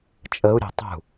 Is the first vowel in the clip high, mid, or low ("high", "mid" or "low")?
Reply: mid